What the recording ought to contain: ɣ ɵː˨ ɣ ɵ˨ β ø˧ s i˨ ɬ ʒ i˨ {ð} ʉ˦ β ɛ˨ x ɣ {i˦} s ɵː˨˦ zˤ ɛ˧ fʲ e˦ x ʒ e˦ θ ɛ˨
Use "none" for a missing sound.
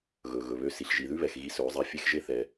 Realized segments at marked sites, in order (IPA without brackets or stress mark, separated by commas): ð, i˧